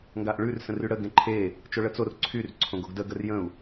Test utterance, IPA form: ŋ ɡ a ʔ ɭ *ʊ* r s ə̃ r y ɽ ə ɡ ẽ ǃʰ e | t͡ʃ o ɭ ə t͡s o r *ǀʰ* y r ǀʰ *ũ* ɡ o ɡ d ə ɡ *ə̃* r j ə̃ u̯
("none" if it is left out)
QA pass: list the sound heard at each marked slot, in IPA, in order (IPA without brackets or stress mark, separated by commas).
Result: ʉ, ǀʰ, õ, ə